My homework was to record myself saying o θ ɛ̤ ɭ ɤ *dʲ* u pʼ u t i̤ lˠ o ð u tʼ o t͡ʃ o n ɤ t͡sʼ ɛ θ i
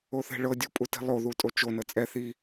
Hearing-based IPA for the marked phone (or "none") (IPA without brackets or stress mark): dʲ